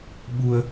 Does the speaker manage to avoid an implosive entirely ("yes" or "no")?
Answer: no